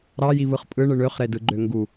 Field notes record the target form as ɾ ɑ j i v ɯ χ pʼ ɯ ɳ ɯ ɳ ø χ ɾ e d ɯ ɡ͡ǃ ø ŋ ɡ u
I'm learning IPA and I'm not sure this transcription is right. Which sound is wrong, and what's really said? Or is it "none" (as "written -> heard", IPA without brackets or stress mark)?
none